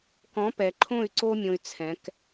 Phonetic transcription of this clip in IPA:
k ɔ̃˨˦ p ɛ˨ ǃʰ õ˦˨ y̯ ǀ o˦ mʲ õ˦ y̯ t͡sʰ ɛ̃˨˦ k

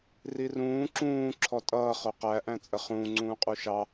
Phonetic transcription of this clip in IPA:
r i r ũː ǁ ũː ǁʰ ɔ tʼ ʌː χ ʊ q æ ʔ æ̃ t͡sʼ ə χ ũː ŋ͡ǀ ũː qʼ u ʃ ɑ

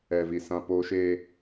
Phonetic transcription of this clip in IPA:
ɛ˨ v i˨ s ã˦ p oː˦ ʃ eː˦

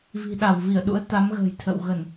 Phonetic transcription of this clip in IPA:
v i̤˨˩ ɗ a˧˩ w v i˧˩ ə̯ ɗ ṵ˧˥ ə̯ t̪ a˨˦ m ɣ ə̤ː˨˩ j t̪ʰ ə̰˧˨ w ɣ ə˧˩˨ n

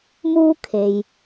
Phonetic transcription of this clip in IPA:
m uː˥ kʰ e˧ j

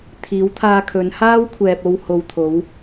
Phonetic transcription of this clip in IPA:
t̪ʰ iː˨˧ w t̪ʰ aː˧ kʰ ɵ˨˧ n h aː˥ w kʷʰ ɛː˨ p̚ o˧ w h o˨ w t̪ʰ o˨˧ w

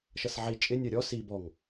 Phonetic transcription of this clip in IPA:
ʃ ʌ s ʕ i t͡ʃʼ ɪ nʲ ɜ ɾʲ ɔ s i b ɔ ŋ

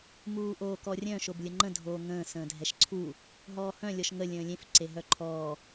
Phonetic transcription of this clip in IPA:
m uː ʔ oː k ɔ rʲ œ̃ ʃ o b lʲ ə ŋ͡ǃ ə̃ dʱ oː ŋ ə̃ː s ə̃ː dʱ ɛ ʃ ǀʰ u | ɦ ɔː h œ̃ lʲ ɔ ʃ ŋ ə lʲ ə̃ː lʲ ẽ f ǀ e ɦ œ ǃʰ ɔː

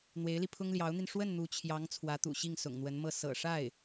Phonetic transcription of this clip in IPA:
n̪ w e˧˥ ɪ̯ l i˧ pʰ ʊ˥ ŋ l j ɑ˧˥ ʊ̯ n̪ i˧ n ʂ w ə˥˩ n n̪ u˧˥ t͡ɕʰ j ɑ˧˥ ŋ t͡sʰ w ä˧˥ t̪ ṵ˨˩ ɕ i˥˩ ŋ s ʊ̰˨˩ ŋ n̪ w ə˧˥ n m ɤ˥˩ s ɤ̰˨˩ ʂ a˥˩ ɪ̯

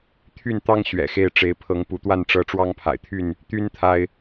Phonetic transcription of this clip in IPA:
t̪ʰ y˥˨ n t̪ ɑ˦ ŋ ɕ ɥ ɛ̰˨˩ x e˥˨ ɪ̯ ʈ͡ʂ e˨˦ ɪ̯ pʰ ɤ˨˦ ŋ p u˨˦ t̪ w a˥˨ n ʈ͡ʂ ɤ˦ ʈ͡ʂ w ɑ˦ ŋ pʰ a̰˨˩ ɪ̯ t̪ʰ y˥˨ n | t̪ y˦ n t̪ʰ a˦ ɪ̯

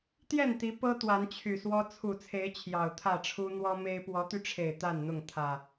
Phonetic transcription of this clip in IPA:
t̪ j ɛ˥˨ n t̪ i˨˦ p ɤ˦ t̪ w a˨˦ n t͡ɕʰ y˨˩ s w ɔ˦ t͡sʰ u˨˩ t͡sʰ e˨˦ ɪ̯ t͡ɕʰ j ɑ˨˩ ʊ̯ t̪ʰ ä˥˨ ʈ͡ʂʰ u˦ n̪ w ɔ˦ m e˦ ɪ̯ p w ɔ˨˦ t̪ y˧ ʈ͡ʂʰ e˨˩ ɪ̯ t̪ a˥˨ n n̪ ʊ˥˨ ŋ t̪ʰ ä˨˩

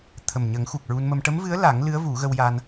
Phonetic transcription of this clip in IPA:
t̪ʰ ə˨˩ m ɲ ə˨˩˦ ŋ x u˨˩ k̚ ɹ u˧ n m ə˧ m ʈ ə˧˥ m v ɨ˧˥ ə̯ l a˨˩˦ ŋ l ɨ˧˥ ə̯ v u˨˩˦ ɣ ə˧ w j a˧ n

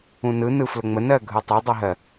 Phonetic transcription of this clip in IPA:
ũ n ɯ n ɯ f l ə ŋ͡m ə n ɜ ɡʱ ɯ tˤ e dˤ ɯ ɦ ɜ

